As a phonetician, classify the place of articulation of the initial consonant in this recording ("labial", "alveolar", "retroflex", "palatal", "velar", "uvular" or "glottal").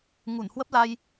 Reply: velar